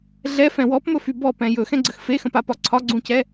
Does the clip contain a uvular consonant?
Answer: no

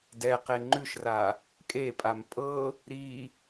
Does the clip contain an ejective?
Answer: yes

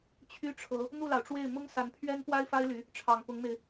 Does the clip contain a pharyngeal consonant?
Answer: no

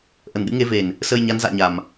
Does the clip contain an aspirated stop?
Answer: no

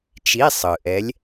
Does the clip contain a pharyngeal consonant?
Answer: no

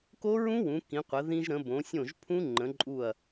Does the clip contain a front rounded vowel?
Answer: no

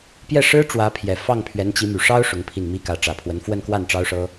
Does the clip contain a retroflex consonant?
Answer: yes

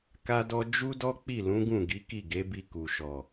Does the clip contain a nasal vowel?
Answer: yes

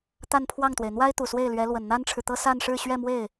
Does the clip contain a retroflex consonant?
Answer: yes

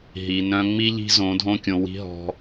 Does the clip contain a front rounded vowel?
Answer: yes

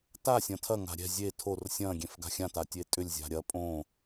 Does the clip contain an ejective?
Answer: yes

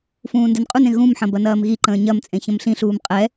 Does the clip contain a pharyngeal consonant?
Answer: yes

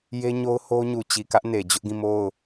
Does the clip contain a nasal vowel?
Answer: yes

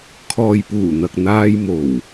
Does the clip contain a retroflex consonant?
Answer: no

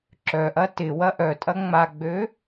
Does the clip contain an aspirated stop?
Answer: no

